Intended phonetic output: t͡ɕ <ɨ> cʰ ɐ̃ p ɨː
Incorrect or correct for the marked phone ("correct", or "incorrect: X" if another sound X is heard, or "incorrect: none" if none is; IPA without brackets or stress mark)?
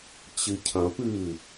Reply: correct